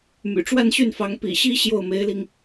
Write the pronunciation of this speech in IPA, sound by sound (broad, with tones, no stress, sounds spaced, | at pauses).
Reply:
m y̰˨˩ ʈ͡ʂ w a˥˧ n ɕ y˥˩ n f ɑ˧˥ ŋ p ḭ˨˩ ɕ i˥ ɕ j o˥˩ ʊ̯ m e˧˥ ɪ̯ l i˧ ŋ